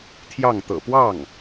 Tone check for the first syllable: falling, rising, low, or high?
falling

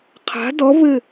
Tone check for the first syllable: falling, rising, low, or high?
rising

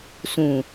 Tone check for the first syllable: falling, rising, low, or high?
low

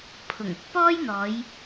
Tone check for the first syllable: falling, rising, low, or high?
low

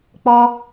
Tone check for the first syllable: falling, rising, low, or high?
high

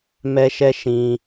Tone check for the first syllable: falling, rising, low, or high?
high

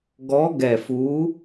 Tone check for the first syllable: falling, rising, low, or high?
rising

